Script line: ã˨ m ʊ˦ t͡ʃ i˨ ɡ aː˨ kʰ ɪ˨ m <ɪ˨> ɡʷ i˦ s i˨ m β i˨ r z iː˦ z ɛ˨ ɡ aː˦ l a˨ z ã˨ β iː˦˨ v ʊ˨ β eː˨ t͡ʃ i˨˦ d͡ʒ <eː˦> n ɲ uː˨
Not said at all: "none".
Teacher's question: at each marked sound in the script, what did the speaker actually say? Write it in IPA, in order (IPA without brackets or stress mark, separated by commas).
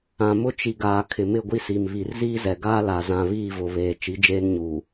ɪ˦˨, eː˦